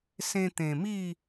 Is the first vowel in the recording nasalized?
yes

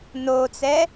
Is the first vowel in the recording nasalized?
no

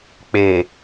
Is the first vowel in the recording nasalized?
no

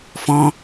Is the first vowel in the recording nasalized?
yes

